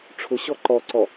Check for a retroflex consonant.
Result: present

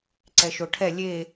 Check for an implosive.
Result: absent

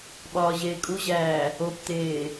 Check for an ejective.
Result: present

